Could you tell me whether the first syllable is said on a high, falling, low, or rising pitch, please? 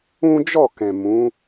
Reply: high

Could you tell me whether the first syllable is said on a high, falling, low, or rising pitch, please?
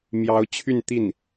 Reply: rising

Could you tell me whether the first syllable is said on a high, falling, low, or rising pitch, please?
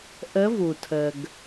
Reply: rising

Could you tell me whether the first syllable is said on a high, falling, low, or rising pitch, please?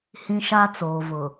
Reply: high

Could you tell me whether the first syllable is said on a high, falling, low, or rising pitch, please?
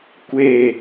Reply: falling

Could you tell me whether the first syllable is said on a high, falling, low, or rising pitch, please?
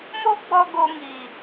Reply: high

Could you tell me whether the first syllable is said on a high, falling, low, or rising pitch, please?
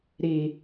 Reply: low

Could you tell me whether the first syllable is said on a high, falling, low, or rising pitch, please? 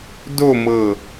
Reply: falling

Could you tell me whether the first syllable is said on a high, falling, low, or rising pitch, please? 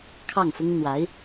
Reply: falling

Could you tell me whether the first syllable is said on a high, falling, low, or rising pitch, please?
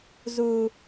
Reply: low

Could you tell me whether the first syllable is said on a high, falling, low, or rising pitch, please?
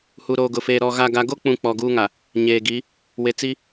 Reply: low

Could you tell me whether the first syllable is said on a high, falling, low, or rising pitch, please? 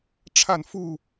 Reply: falling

